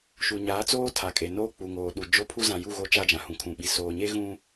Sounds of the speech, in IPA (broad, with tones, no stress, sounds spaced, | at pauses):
ʃ u˨ ɲ aː˨˦ t͡s oː˦ tʰ a˨ kʼ e˨ n oː˦ k͡p u˨ ŋ oː˨ ɗ u˨ d͡ʒ o˦ pʰ u˦ z ã˨ j u˦˨ ɣ o˦ t͡ʃ a˦ d͡ʒ ã˨ h ũ˨ kʰ ũ˨ ɓ i˨ s oː˨ ɲ e˦ ɣ ũ˦